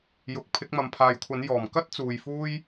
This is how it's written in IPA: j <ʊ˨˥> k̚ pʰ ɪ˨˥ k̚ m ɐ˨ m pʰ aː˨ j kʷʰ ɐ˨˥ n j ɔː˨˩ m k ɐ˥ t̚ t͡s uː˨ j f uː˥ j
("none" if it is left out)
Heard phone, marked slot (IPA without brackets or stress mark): ʊ˨˥